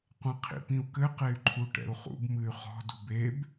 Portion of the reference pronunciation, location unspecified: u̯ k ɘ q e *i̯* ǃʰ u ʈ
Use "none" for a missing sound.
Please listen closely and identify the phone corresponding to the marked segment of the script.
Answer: y̯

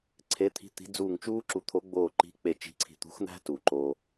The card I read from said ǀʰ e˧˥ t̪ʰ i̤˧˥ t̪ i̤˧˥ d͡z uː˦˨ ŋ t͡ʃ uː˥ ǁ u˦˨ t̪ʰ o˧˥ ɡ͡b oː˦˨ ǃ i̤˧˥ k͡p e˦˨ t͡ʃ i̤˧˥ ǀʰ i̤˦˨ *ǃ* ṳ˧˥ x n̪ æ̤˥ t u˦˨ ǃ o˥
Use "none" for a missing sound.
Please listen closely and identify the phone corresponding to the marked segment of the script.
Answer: t̪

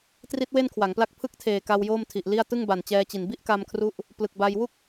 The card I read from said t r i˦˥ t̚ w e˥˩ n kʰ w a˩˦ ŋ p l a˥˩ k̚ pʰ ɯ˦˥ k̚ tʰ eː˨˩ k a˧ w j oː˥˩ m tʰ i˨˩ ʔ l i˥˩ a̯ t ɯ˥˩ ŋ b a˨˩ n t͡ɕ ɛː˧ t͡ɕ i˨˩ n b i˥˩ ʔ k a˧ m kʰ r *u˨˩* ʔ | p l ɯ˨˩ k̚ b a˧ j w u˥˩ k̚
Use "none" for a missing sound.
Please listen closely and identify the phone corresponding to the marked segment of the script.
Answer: u˦˥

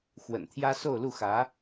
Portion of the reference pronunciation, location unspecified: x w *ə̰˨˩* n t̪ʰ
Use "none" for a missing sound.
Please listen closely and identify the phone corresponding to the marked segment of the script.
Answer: ə̰˨˩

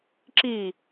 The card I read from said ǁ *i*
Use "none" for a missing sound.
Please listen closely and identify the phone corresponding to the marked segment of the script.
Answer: i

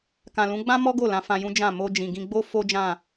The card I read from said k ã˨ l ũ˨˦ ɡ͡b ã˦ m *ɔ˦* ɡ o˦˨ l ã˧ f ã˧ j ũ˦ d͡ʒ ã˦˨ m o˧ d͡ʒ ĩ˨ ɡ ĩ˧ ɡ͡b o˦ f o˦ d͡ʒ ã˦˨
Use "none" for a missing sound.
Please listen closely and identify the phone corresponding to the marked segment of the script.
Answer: ɔ˦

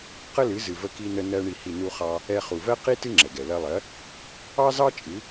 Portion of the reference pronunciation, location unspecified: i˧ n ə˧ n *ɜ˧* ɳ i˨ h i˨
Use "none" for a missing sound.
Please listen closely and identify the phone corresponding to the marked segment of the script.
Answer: ɜ˧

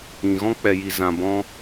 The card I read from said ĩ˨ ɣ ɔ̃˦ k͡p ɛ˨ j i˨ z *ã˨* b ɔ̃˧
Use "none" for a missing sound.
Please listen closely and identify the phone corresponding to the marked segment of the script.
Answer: ã˨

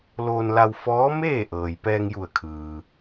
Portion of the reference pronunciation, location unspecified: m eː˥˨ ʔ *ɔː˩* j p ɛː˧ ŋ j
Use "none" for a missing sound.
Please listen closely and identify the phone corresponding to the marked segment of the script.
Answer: ɤː˩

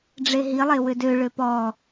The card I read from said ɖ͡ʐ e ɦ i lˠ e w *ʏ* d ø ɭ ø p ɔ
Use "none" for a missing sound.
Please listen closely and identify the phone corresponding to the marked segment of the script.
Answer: ʏ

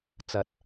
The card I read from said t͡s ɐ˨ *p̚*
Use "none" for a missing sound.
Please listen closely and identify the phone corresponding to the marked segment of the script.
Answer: t̚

